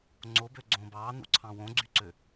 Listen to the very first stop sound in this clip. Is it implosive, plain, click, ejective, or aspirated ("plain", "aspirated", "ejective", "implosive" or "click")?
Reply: click